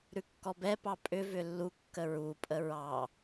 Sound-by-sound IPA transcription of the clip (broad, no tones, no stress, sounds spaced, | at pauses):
ɾ ʉ kː ɔ b ɛ p ɑ pʼ ʏ v ʏ lː u kː ə ɹ u pʼ ə ɹ ɑ